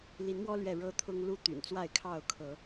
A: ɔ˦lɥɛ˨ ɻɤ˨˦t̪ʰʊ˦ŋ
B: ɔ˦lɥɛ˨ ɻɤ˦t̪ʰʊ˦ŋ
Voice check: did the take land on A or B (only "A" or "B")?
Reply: B